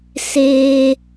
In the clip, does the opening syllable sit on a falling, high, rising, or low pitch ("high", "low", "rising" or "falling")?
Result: high